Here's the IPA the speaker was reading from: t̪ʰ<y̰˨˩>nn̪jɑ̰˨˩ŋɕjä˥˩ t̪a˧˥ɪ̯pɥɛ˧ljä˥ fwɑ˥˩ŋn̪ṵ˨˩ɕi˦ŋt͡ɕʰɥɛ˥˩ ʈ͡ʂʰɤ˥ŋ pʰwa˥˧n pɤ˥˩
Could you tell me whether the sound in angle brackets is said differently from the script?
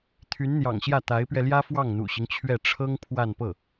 yes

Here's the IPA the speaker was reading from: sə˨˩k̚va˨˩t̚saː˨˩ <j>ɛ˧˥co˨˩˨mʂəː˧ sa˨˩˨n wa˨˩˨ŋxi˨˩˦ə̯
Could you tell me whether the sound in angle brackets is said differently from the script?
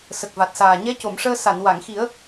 yes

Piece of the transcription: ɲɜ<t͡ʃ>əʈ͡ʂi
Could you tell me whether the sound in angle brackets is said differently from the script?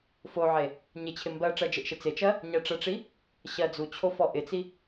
yes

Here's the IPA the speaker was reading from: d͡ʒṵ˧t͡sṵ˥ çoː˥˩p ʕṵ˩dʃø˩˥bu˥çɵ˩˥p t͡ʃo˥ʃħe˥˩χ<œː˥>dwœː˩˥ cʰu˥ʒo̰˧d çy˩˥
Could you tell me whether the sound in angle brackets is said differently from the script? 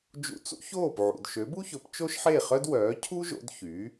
yes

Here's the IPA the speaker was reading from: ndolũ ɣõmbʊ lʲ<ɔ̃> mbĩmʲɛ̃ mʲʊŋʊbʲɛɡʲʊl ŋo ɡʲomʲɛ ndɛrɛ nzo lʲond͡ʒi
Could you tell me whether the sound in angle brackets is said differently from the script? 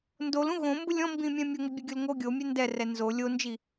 no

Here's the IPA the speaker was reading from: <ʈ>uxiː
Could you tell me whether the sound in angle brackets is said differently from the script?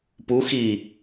yes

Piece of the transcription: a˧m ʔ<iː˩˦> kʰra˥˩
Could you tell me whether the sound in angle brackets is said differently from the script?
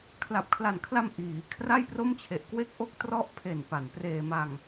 no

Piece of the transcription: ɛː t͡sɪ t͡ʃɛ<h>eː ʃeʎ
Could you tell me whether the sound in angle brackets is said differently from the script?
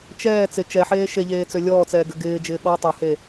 yes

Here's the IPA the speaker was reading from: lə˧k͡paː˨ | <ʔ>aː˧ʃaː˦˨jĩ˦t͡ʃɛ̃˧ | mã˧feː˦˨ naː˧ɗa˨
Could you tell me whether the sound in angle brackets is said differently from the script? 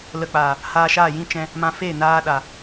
yes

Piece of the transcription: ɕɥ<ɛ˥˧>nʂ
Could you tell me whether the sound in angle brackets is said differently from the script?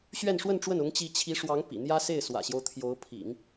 no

